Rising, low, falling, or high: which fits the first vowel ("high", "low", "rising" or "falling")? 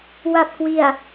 low